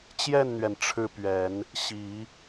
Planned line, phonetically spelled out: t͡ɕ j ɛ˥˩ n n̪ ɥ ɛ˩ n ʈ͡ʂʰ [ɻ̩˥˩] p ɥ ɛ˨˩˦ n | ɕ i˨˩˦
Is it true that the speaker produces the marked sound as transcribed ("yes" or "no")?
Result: yes